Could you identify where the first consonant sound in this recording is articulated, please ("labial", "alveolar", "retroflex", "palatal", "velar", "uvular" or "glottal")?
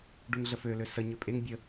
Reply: retroflex